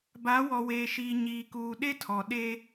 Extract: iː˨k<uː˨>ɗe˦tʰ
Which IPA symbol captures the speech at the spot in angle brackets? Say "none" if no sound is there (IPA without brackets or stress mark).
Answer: uː˨